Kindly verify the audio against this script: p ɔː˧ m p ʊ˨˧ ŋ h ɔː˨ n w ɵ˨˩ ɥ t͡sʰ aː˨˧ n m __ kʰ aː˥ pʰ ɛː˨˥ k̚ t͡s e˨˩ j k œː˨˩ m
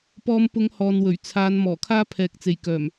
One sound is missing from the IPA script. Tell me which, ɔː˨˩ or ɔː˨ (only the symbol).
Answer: ɔː˨˩